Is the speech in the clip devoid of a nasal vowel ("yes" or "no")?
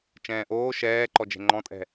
no